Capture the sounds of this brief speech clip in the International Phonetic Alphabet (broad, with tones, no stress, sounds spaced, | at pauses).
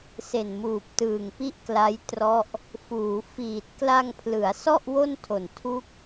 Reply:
s e˨˩ n m uː˨˩ p̚ t ɯː˨˩ ŋ p i˦˥ ʔ k l a˦˥ j t r ɔ˦˥ ʔ | f uː˩˦ f iː˨˩ t̚ k l a˧ ŋ pʰ l ɯ˩˦ a̯ s ɔ˥˩ ʔ w o˥˩ n tʰ o˨˩ n tʰ u˥˩ k̚